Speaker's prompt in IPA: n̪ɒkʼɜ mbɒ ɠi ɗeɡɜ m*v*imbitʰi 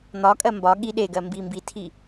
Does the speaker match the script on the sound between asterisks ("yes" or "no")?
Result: no